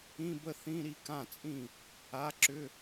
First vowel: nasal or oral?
nasal